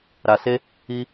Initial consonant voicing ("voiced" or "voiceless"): voiced